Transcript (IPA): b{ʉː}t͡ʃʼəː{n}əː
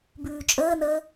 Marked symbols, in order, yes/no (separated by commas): yes, yes